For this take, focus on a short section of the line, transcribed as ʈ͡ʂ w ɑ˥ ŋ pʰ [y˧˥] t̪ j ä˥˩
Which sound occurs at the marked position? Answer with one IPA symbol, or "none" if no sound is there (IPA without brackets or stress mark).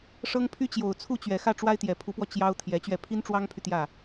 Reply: y˨